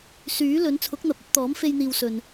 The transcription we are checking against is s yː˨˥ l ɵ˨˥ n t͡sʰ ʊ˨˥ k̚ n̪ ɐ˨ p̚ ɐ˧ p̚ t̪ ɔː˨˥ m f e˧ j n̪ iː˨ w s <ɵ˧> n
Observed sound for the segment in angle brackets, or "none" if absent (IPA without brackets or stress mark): ɵ˨